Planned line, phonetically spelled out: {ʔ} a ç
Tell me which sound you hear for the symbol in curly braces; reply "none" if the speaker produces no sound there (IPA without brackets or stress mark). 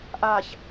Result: ʔ